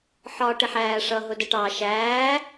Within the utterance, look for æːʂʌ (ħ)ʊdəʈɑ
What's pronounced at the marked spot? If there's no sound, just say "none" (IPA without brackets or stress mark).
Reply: ɦ